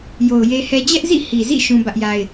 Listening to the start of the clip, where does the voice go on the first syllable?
low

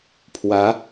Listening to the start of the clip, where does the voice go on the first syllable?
rising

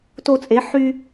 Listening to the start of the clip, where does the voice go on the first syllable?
high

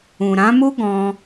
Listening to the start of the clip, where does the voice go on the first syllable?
low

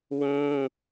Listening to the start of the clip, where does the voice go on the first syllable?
high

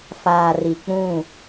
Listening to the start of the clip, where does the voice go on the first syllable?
low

